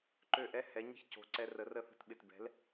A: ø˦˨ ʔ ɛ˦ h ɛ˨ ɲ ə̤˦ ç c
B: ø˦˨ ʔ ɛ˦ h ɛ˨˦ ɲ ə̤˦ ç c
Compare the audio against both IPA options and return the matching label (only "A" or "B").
B